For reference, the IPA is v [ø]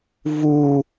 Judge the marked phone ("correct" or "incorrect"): incorrect